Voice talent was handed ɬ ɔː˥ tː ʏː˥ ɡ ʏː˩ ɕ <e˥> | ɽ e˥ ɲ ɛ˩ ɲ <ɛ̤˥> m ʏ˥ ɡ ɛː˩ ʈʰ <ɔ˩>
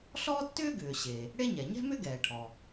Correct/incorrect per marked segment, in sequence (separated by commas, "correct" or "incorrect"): incorrect, correct, correct